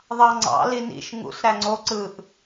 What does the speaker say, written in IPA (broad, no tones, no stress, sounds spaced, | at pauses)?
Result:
ðˤ ɑ ŋ͡ǀ ɑ̰ l i n ḭ ʃ ŋ ṵ s ɾ æ ŋ͡ǀ o ǀ ɯ ʔ